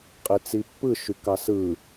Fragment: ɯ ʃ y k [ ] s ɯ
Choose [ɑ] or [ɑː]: ɑ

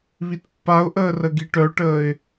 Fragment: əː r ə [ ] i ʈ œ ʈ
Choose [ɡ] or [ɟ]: ɡ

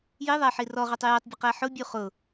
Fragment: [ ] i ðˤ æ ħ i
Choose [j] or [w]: j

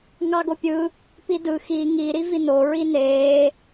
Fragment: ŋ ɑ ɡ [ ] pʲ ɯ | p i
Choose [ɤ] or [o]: o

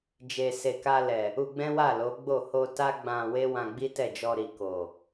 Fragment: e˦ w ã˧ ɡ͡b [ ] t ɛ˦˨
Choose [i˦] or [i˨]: i˦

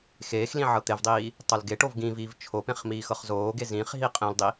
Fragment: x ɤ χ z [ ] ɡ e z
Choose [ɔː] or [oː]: oː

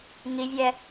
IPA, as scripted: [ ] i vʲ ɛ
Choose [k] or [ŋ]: ŋ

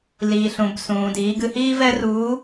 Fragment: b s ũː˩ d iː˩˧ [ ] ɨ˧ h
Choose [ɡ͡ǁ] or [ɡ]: ɡ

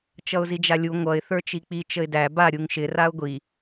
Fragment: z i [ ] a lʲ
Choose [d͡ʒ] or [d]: d͡ʒ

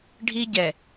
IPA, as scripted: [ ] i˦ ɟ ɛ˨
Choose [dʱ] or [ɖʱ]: ɖʱ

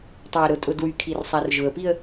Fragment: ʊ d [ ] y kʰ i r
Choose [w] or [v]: w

